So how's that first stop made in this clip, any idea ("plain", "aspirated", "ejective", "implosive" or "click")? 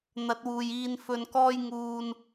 plain